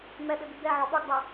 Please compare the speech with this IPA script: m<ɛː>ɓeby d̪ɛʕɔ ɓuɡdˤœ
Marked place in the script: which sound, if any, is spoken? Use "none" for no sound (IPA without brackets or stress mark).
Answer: ɛ